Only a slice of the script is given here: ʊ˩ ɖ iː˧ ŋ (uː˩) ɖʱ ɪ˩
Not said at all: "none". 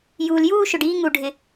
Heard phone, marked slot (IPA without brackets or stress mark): u˩